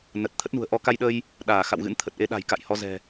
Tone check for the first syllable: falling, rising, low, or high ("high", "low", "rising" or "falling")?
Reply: low